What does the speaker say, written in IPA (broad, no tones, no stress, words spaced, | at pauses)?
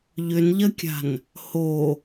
ʎʏnʎɐkʲa̤n | ho